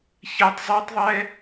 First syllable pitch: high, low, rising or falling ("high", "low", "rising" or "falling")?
high